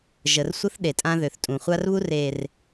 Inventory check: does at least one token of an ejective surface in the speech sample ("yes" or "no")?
yes